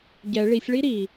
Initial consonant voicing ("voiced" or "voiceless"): voiced